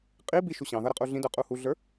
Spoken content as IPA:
qʼ i b i ʃ u ɕ ɑ̃ ð ʌ ɾ ə qʼ u ɮ ĩ d ə˞ qʼ u h u ɮ ə˞

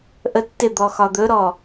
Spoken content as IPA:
ʔ ə tː ɪ d̪ ɔ x ɒ d̪ ɵ ɾ ɔ

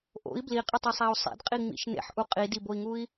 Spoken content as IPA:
ʔ o̰ i̯ b l i qʼ e tˤ e sˤ æ u̯ sˤ ḛ d qʼ i ŋ͡m ḭ ʃ n ḛ ħ ʔ u qʼ i d i b o i̯ ŋ u i̯

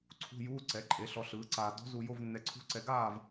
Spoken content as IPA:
ǀʰ ṳ˧˥˧ j uː˧˥˧ ǀ ɛ˩˥ ǃʼ e˩˥ ɬ ɔ˧ ɬ ɯː˩˥ ǀ aː˧ d ɔ̤˧˥ z u˧ j o˧˥˧ v nː ɛ˧ ǀʰ ṳ˧˥˧ ǀ ɛ˧ ɡ aː˥˨ v

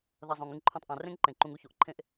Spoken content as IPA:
ð ɐ˨ zˤ õ˩ ŋ ɨ˨ ŋ ǃʰ õ˨ tˤ ʔ ã˩ r ẽ˥ ŋ ǃ ẽ˩ ǃ ũ˨ ŋ u˥ ç o˨ ʔ ǃʰ ẽ˥ ʔ

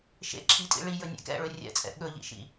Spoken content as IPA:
ʃ ḛ ǁʰ i tʼ ḭ ɭ i j ɵ nʲ ḛ k ɛ̰ ɭ ɵ rʲ ɛ̰ t͡sʼ ɛ̰ ɠ ɵ ʎ ḭ ʃ ḭ

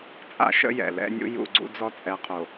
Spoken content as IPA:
t͡sʼ a̰˦ ʃ ə̰˦ j ɛ̰˨ l ɛ̰˦ nʲ ṵ˦ j ṵ˦˨ ɡ͡ǀ ṵ˦ d͡z ɔ˦ t͡sʼ ɛ˨ qʰ o˨

